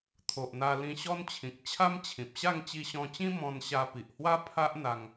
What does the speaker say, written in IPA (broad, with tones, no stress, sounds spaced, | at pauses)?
t̪ʰ o˨ ʔ n̪ a˧ l ĩ˧ ɕ ɔ˦ n t͡ɕʰ ĩ˨ k̚ t͡ɕʰ a˦ m t͡ɕʰ ĩ˨ p̚ ɕ a˥˧ ŋ t͡ɕ i˧ ɕ ɔ̃˧ t͡ɕ ĩ˦ m ɔ̃˧ n ɕ a˧ p i˨ ʔ h w a˦ pʰ a˦ ʔ n̪ a˧ ŋ